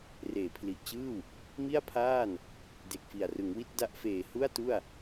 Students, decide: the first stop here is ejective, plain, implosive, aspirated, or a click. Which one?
aspirated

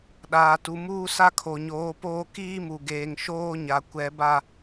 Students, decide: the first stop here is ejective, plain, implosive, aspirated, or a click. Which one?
implosive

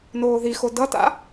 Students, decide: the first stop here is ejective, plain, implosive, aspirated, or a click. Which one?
plain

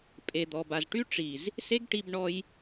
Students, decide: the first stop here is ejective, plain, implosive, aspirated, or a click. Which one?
ejective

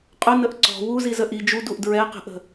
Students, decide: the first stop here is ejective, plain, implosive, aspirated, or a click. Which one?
ejective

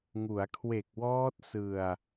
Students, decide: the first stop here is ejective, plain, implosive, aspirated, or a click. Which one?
aspirated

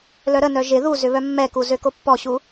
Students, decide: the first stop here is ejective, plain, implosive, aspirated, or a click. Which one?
plain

